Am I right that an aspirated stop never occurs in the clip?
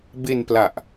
yes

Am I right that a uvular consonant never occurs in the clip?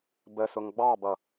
yes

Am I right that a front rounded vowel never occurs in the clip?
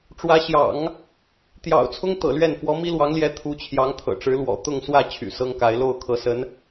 no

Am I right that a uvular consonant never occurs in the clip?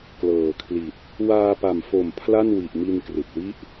yes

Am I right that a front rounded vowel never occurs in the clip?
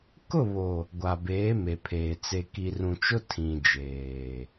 yes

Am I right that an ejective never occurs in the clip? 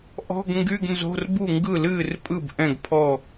no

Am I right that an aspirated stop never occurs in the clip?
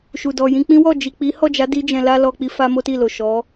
yes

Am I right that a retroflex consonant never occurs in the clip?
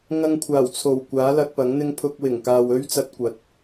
yes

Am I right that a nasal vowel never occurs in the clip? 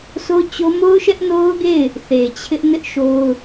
yes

